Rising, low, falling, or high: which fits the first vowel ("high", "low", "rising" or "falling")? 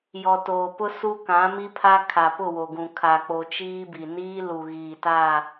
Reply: low